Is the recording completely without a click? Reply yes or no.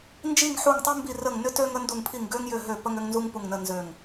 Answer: yes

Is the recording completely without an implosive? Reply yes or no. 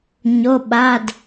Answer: no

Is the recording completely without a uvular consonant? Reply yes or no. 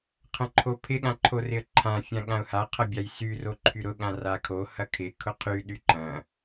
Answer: no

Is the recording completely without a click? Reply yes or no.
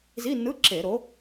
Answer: no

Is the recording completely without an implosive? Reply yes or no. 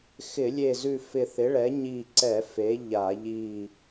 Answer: yes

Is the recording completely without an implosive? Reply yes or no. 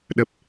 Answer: no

